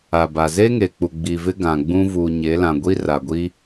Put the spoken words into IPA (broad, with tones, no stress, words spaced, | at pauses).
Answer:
a˨ba˨ ze˦ŋe˨k͡pu˨ ɡ͡bi˨vɪ˦ ɡã˨ɡ͡bũ˦ vuː˨ɲe˨˦lã˨ ɡʷi˦ra˨ɡʷi˦